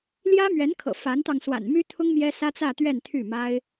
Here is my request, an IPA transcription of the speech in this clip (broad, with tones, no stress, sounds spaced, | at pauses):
l j ä˥ m ɥ ɛ˧˥ n kʰ ɤ̰˨˩ f a˧˥ n t̪ ɑ˧ ŋ s w a̰˨˩ n m y˥ t̪ʰ ʊ˥ ŋ m j ɛ˥ s ä˥ t͡s ä˥˧ t̪ ɥ ɛ˥˧ n t̪ʰ y˥˩ m a˥ ɪ̯